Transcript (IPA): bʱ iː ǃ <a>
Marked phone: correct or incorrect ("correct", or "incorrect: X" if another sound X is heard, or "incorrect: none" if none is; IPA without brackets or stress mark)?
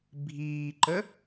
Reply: incorrect: ə